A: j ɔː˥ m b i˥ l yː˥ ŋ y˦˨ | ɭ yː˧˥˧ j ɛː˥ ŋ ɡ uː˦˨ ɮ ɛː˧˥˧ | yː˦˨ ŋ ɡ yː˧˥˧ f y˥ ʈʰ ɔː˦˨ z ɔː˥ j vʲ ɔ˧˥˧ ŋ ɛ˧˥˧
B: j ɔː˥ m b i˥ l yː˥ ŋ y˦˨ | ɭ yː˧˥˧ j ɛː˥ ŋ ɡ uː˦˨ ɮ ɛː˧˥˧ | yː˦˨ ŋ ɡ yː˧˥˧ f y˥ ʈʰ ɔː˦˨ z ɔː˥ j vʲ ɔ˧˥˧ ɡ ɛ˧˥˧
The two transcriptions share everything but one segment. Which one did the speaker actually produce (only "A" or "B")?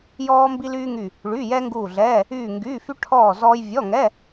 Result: A